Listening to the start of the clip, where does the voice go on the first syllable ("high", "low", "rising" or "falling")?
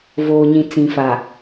low